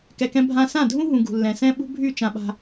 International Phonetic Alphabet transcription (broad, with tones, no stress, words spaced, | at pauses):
kɛ˨kɛ̃˧ bʱã˧sã˦˨dʱũ˦ɦũ˨ ɡṳ˨lːɛ̃˨sɛ̃˦ ɓṳ˦bʱy˦˨t͡ʃã˧ɓa̤˧